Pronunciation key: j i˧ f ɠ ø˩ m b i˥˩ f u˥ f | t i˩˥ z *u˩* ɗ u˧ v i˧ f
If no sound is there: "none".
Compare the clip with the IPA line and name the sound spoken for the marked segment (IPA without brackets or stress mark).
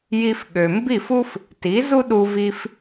u˥